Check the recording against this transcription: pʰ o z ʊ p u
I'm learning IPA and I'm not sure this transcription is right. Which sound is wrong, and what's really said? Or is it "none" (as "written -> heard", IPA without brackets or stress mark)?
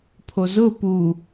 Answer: none